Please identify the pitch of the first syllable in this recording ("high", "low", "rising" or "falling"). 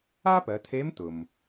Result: high